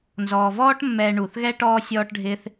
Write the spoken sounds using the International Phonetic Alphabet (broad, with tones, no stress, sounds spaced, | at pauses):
n z ɔː˩ v ɔː˥ ʈ mː ɛː˨ ɳ uː˩ θ ɣ ɛ˥ ʈ ɔː˦ sʲ ɔː˦ ʈ ɖʱ ɪː˦ θ